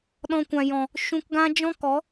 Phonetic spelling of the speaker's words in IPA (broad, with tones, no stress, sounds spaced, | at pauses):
ɗ ɔ̃˧ kʷ ã˨ j ɔ̃˨ | ʃ ũ˧ k ɡ ã˦ d͡ʒ ɔ̃˦ k ɔ˨˦